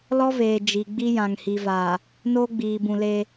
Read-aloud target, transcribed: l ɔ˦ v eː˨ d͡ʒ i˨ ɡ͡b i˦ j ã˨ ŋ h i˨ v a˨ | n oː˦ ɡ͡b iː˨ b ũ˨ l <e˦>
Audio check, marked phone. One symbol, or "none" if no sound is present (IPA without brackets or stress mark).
e˦